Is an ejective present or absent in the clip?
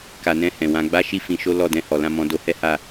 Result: absent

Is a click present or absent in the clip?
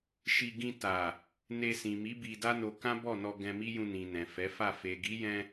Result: absent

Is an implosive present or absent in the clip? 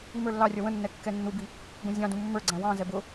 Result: absent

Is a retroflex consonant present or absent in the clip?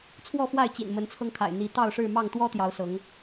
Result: present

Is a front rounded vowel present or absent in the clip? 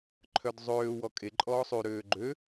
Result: present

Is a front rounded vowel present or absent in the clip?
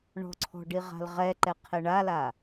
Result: absent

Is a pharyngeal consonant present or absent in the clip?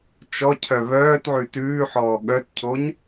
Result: present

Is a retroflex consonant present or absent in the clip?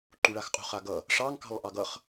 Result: present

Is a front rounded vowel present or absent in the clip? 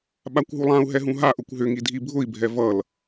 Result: present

